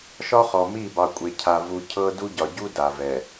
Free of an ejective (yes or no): no